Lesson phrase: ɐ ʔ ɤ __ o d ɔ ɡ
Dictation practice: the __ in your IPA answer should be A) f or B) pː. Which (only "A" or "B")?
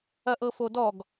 A